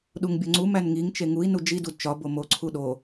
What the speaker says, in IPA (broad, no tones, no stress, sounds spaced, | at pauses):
ɗ u ŋ bʲ o ŋ͡ǀ u m æ n ŋ i ŋ t͡ʃ e ŋ u i̯ n u d͡ʒ i d u d t͡ʃ ɒ b o m o ǀʰ u ɗ o